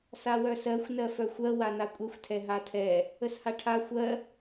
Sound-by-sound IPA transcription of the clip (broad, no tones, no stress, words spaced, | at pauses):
sawœsɜxʷ nɜfœxʷɜ wanakʷʼɛxʷ tʰɛɦatʰɛ | əshaʈʰa xʷɜ